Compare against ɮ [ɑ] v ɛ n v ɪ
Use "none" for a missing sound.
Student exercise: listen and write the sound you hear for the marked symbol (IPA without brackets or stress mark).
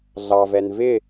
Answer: ɑ